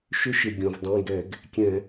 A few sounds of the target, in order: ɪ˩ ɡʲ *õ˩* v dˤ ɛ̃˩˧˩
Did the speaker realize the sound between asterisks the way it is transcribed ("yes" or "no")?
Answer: yes